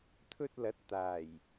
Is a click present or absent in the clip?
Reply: absent